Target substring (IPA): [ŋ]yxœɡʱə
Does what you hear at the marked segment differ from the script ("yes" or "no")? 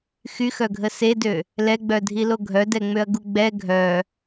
yes